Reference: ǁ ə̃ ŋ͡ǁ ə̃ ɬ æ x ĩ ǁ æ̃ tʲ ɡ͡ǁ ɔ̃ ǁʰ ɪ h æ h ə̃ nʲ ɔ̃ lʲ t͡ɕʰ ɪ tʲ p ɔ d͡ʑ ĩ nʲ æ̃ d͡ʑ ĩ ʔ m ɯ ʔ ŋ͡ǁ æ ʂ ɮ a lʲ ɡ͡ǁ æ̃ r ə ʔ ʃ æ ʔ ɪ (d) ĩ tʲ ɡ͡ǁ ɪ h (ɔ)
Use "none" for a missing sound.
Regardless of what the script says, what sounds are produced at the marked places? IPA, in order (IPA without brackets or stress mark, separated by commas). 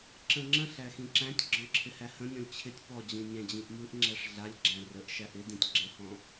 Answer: d, ɔ̃